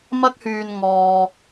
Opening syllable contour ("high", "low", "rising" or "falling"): high